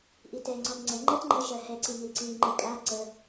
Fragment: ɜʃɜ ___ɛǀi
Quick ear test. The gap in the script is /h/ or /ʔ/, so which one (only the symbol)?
h